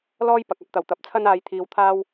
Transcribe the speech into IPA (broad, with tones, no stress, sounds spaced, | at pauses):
l ɔː˥ j p ɐ˨ k̚ ɐ˧ p̚ t̪ ɐ˨˩ w t̪ ɐ˨˥ p̚ t͡sʰ ɐ˥ n aː˧ j t̪ʰ iː˧ w t̪ʰ aː˥ w